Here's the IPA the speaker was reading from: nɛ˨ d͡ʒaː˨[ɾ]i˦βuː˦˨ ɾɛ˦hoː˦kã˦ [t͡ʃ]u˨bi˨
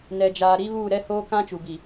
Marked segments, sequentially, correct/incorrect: correct, correct

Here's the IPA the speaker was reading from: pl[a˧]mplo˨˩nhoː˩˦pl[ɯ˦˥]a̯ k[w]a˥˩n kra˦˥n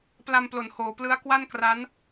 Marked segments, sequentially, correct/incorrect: correct, correct, correct

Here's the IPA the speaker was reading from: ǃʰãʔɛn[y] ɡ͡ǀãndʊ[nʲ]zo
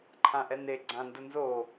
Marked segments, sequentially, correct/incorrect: incorrect, incorrect

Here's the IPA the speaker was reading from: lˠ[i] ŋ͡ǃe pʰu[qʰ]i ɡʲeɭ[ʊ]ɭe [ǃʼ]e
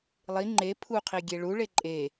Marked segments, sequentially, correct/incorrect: correct, correct, incorrect, correct

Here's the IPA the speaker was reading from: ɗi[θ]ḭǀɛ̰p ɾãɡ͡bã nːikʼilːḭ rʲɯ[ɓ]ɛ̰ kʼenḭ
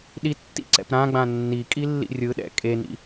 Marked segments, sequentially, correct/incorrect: incorrect, incorrect

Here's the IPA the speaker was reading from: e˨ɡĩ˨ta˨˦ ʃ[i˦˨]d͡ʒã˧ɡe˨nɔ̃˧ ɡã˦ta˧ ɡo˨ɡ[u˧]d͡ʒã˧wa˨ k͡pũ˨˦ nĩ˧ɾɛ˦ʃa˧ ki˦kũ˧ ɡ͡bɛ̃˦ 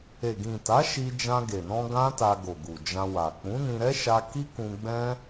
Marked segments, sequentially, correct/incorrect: incorrect, incorrect

